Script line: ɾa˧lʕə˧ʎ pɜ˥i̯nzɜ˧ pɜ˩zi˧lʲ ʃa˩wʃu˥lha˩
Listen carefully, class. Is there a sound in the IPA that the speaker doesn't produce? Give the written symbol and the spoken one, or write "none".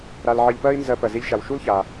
h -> ç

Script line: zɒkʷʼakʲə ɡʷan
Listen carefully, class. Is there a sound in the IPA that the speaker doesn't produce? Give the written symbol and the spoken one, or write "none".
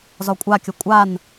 ɡʷ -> kʷʼ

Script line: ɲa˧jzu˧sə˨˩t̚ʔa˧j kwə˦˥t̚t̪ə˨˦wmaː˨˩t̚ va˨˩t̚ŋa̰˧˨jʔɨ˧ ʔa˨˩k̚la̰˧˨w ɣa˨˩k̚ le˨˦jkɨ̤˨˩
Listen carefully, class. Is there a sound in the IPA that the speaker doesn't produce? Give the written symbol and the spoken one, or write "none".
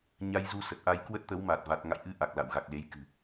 none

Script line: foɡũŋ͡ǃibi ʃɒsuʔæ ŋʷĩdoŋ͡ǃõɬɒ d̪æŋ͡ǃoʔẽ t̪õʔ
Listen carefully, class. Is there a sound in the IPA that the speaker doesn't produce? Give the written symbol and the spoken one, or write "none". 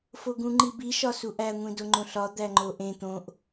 none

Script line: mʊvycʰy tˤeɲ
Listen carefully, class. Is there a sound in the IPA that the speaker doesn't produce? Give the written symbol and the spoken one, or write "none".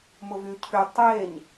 none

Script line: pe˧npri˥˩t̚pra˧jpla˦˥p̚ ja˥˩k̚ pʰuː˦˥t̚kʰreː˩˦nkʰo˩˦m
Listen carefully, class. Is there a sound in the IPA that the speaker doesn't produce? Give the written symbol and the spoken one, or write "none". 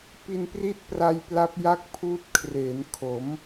e˧ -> i˧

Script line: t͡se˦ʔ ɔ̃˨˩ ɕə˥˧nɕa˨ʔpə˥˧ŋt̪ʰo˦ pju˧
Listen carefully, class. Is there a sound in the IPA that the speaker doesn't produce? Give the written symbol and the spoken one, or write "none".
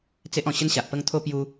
none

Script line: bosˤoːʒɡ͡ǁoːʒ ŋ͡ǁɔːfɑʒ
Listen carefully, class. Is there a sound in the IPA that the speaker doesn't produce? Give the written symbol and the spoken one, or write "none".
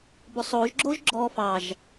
ŋ͡ǁ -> ɡ͡ǁ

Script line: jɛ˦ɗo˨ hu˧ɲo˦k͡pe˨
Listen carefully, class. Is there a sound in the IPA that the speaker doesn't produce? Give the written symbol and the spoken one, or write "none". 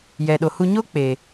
ɛ˦ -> ɛ˨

